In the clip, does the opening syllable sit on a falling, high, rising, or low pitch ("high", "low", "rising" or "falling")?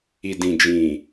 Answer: low